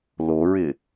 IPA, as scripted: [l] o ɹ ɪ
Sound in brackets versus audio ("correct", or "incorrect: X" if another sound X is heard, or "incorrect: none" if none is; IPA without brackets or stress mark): correct